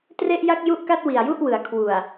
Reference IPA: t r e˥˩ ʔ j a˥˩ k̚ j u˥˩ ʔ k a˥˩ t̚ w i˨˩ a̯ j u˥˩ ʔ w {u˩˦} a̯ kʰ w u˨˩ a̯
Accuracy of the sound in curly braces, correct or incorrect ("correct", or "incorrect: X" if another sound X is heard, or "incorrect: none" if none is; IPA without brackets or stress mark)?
incorrect: ɯ˩˦